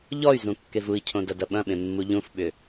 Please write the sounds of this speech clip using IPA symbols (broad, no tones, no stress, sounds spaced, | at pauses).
ʎ ɔ y̯ z ũ kː e v u i̯ cʰ õ d ɐ d ɐ ɓ ɐ̃ ɓ ẽ mː u ʎ ũ f ɓ ʏ